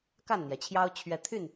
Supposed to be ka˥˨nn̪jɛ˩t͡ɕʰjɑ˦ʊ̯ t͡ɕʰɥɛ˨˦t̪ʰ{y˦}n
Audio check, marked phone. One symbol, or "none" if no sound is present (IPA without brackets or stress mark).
y˥˨